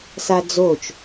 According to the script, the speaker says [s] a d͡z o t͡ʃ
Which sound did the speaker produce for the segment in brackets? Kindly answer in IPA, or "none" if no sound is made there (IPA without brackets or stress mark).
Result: s